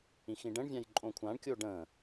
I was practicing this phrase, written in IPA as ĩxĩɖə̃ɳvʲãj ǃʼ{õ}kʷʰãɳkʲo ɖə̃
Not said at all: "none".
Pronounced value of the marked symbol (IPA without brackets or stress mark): õ